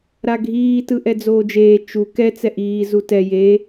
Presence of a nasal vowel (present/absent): absent